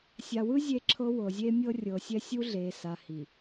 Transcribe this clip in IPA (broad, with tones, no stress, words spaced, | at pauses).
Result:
sʲa˨wɯ˦ zʲe˦ǁʰɤ˦ wɤ˨zʲe˦mʲɤ˦ rʲɤ˨ sʲɛ˦sʲu˦ ɮe˨sa˨hi˨